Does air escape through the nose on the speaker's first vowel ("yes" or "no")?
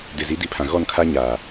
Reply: no